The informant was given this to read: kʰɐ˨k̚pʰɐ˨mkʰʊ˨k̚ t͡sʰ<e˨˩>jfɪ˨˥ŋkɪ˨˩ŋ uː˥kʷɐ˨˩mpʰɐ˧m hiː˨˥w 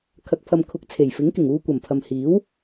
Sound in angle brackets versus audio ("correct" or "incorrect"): correct